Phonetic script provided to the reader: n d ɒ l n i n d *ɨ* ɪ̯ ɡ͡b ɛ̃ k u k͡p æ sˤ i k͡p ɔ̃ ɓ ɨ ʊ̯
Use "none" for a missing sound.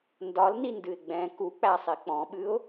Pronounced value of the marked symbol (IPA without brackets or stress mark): ɨ